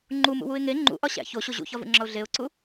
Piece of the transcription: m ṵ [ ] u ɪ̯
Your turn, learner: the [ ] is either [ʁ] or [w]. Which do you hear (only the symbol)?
w